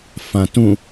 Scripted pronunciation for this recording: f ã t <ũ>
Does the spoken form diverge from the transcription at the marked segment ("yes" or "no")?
no